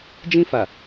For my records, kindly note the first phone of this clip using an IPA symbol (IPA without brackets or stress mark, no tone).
d͡ʒ